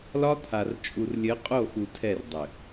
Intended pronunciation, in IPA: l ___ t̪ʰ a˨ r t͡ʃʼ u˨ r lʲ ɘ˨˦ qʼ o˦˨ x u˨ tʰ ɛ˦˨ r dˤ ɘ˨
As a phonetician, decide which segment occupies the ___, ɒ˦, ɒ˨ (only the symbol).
ɒ˦